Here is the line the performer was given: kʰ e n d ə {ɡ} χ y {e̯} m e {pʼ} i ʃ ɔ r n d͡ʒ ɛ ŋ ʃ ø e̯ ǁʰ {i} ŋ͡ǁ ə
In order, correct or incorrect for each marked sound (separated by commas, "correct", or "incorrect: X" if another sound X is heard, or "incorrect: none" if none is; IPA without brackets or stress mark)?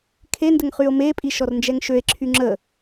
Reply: incorrect: ŋ, incorrect: o̯, correct, incorrect: y